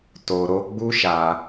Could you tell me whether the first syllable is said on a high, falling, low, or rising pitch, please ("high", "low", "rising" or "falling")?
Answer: low